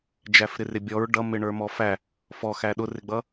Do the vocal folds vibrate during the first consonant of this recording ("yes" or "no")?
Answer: yes